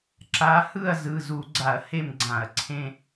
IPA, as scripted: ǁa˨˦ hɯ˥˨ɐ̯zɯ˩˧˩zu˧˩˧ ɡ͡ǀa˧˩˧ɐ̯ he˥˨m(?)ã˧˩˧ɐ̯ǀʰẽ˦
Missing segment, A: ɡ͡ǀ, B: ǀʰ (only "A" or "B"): A